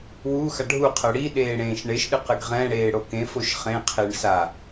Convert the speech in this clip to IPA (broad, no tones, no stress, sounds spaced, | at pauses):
w u x a ɖʱ u qʰ ɤ ɽ i ɗ eː ɽ ẽː ʃ ɳ e ʃ ɗ ɨ q ɨ ɡ ʁ ɛ̃ ɽ eː ɽ o k ẽ f o ʃ χ ẽ qʰ e ɳ s a